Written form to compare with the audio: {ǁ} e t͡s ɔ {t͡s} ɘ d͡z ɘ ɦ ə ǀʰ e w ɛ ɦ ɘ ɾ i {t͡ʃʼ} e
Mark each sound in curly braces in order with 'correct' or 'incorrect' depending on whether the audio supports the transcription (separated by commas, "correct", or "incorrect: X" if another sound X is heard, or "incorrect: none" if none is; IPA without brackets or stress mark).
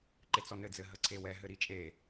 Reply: incorrect: ǃ, incorrect: n, correct